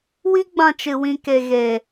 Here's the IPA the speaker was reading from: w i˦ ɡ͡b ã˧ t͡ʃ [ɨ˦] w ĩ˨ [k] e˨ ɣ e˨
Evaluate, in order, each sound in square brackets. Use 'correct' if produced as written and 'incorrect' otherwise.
incorrect: ɨ˨, correct

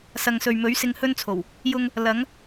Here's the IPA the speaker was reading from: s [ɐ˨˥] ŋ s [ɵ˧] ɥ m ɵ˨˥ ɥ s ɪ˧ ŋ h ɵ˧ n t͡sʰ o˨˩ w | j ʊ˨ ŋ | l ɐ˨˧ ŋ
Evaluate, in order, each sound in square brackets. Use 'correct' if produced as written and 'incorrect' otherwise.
incorrect: ɐ˨, incorrect: ɵ˨

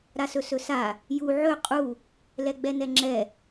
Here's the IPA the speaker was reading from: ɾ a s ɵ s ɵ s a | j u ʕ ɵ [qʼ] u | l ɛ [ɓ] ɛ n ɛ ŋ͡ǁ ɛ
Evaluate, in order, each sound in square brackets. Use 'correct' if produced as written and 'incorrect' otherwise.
correct, incorrect: ɡ͡b

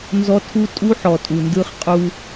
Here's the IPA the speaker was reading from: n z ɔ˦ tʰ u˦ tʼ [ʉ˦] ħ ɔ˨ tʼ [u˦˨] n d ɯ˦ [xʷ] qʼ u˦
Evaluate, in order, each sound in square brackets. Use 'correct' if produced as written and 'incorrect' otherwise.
incorrect: u˦, incorrect: u˨, incorrect: χ

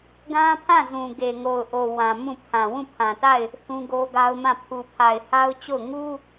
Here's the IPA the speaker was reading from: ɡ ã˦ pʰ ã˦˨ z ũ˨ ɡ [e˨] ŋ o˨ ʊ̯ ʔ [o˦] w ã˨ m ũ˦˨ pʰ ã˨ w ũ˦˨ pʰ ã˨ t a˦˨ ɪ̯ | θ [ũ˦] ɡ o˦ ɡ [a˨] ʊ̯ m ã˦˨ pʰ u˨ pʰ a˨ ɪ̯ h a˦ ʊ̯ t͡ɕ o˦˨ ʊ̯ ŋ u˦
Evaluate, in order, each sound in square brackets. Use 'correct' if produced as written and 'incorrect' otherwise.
correct, incorrect: o˨, correct, incorrect: a˦

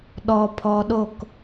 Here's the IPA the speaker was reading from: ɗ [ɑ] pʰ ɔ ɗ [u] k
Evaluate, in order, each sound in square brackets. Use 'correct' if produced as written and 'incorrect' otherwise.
incorrect: ɔ, incorrect: o

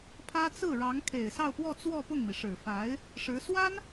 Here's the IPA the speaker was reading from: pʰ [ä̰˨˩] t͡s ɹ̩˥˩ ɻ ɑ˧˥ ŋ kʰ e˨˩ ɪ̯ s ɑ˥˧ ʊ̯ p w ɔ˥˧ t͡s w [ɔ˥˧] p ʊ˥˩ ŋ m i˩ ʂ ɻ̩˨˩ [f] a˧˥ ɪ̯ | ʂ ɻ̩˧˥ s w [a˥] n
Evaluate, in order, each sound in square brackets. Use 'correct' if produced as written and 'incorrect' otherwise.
incorrect: ä˥, correct, correct, correct

